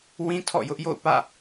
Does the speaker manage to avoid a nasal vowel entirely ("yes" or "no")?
no